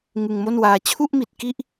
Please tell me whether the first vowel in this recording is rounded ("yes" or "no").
no